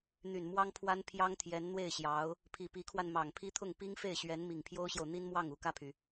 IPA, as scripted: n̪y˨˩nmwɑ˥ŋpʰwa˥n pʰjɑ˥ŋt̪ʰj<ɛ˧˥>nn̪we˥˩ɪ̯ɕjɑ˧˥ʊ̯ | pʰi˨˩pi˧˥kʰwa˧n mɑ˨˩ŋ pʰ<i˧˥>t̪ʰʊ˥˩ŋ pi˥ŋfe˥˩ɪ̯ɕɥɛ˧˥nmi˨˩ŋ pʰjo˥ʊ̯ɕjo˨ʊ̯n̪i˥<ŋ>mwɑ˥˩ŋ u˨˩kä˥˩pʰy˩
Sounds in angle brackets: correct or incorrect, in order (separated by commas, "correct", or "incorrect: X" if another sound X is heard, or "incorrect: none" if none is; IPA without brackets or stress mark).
correct, incorrect: i˥, incorrect: n